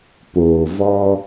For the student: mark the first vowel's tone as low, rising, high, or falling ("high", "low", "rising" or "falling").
low